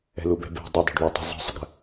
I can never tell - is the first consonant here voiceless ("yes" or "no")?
no